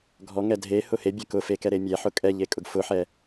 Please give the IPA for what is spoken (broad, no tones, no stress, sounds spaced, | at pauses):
ɡʱ ɔ ŋ ɛ dʱ e h ʊ h e bʲ ɛ k ʊ f e k ɛ ɾ e mʲ ɛ ħ ʊ kʼ ɛ ʎ e kʼ ʊ ɡ f ʊ ħ ɛ